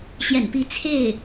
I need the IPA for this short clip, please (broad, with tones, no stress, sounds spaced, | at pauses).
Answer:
ɕ j ɛ̰˨˩ n p i˧˥ t͡sʰ e˥˩ ɪ̯